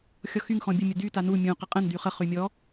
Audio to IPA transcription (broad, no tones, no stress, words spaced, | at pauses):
xʲɔxyŋ xɔ̃bʲə mʲədy tanu mʲũ qəqʼə̃n dyχə χymʲɔ